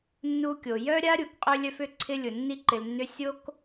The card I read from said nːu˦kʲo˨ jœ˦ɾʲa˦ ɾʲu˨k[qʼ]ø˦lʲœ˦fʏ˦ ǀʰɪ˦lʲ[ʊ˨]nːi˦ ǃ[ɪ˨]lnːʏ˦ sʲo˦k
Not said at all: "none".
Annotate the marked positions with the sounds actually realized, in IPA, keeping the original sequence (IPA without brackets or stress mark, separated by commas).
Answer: qʼ, ʊ˨, ɪ˨